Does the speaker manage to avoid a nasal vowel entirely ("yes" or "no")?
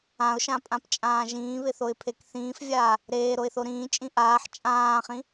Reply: no